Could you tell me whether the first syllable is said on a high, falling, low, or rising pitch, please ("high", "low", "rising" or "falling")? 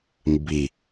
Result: low